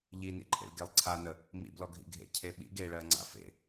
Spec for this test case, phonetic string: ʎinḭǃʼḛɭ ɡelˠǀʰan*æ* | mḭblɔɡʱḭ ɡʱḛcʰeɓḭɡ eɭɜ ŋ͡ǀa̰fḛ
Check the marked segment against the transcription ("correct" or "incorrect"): incorrect